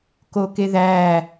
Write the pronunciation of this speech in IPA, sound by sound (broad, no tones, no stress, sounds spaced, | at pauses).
k o k e ð æ